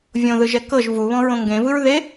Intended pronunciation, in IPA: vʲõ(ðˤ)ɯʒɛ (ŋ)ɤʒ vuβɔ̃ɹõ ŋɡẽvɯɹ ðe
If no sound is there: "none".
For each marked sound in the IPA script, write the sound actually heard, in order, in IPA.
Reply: ð, k

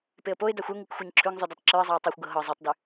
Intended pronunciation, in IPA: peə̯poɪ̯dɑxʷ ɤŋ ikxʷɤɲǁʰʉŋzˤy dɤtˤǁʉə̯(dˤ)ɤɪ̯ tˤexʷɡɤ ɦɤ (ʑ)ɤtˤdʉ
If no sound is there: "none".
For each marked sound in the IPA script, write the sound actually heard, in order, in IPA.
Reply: zˤ, zˤ

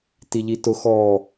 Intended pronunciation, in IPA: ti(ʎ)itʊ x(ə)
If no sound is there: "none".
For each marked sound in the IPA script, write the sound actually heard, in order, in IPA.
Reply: ʎ, ɔ

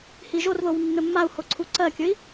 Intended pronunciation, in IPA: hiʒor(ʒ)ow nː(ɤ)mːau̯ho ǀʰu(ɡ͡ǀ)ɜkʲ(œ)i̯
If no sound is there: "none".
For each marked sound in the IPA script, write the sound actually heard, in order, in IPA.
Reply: ð, ɵ, ǀ, ɵ

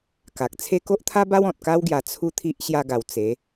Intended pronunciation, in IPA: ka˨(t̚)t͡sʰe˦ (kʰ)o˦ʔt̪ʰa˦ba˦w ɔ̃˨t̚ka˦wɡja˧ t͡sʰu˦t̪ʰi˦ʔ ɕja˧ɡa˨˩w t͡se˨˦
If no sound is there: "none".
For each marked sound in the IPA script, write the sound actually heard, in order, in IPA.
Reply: k̚, k

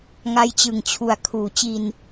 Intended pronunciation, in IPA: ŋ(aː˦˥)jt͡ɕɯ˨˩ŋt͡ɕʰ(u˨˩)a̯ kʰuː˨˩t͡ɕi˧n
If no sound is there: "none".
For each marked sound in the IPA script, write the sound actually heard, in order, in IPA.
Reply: a˦˥, u˨˩

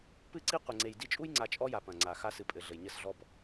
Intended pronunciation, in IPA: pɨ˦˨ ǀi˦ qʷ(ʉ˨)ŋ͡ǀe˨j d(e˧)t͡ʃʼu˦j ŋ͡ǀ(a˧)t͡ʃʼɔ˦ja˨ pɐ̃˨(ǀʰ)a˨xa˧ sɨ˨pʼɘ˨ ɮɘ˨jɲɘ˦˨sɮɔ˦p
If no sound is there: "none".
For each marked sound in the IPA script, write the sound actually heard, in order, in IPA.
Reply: ɘ˨, i˧, a˧, ŋ͡ǀ

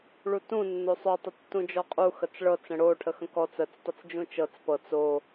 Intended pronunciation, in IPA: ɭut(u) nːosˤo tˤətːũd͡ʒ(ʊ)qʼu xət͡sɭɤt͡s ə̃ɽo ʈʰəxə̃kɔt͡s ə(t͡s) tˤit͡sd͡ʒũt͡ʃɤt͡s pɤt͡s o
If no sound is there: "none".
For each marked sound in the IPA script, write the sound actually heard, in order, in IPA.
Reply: ũ, ɔ, t͡s

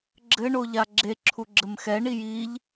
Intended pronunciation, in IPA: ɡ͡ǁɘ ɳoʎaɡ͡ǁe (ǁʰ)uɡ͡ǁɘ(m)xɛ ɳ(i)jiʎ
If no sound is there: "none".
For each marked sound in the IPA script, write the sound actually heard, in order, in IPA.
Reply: ǁʰ, m, i

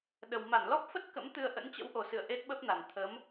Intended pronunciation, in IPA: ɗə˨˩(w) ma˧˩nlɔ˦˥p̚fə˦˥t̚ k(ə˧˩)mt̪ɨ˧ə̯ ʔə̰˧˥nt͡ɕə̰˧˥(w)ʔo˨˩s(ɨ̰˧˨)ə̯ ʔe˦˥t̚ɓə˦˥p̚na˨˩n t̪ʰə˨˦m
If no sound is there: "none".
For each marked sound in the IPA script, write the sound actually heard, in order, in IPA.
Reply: w, ə̰˧˥, w, ɨ̰˧˨

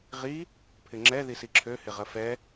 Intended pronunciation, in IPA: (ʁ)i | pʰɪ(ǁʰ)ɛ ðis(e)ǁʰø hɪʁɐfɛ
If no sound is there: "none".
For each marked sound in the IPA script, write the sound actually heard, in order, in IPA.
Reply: ʁ, ŋ͡ǁ, i

